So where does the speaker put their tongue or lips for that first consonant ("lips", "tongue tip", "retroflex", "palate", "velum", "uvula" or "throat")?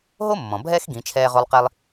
throat